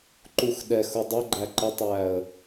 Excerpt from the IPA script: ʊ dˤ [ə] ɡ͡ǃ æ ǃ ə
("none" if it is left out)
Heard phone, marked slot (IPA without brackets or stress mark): ə